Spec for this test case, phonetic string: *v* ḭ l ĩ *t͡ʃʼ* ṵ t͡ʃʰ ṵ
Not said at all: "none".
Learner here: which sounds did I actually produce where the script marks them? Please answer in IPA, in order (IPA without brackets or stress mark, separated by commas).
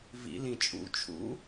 v, t͡ʃʼ